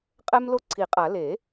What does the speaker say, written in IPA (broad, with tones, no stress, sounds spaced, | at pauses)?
qʼ ɛ˦ m l o˦ ǀʰ i˨˩˦ qʼ a˨˩˦ l e˨˩˦